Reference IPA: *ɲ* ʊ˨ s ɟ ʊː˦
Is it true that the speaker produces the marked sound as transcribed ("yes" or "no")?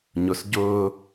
yes